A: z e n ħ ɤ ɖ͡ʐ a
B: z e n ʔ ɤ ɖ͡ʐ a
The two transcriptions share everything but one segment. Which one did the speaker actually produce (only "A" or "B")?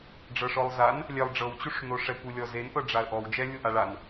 B